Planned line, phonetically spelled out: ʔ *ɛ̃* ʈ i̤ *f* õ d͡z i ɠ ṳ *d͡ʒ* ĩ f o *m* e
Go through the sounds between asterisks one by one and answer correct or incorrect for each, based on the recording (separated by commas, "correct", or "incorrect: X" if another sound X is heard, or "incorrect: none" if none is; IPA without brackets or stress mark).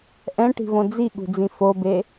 correct, incorrect: v, incorrect: d͡z, incorrect: b